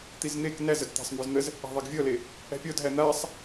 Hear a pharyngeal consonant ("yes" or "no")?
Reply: no